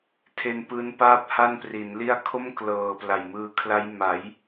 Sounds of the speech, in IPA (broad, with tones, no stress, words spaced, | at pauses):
tʰe˧npɯː˦˥npaː˥˩p̚ ha˥˩npri˩˦nli˥˩a̯ kʰo˥˩mklɤː˨˩ pla˨˩jmɯː˧kʰla˦˥j ma˩˦j